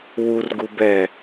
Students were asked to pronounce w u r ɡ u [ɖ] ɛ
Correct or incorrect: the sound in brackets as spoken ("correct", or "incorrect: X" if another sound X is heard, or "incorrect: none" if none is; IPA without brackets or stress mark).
incorrect: b